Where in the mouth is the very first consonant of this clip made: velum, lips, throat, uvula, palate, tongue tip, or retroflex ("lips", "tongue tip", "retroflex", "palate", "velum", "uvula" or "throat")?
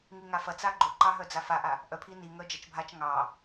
velum